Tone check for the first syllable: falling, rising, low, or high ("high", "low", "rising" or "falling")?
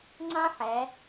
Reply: high